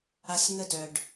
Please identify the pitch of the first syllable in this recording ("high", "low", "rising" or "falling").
low